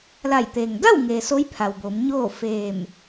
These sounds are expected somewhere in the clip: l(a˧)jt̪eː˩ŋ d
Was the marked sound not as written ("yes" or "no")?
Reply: yes